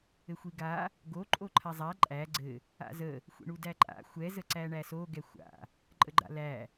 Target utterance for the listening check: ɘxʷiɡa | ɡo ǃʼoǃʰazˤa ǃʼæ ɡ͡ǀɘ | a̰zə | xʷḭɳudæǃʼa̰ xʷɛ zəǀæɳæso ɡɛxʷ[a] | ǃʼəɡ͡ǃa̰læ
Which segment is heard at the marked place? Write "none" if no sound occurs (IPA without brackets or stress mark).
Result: a̰